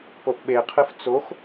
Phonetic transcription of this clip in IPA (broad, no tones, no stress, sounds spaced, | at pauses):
p o ʔ ɓ e qʰ ɨ f t͡s o x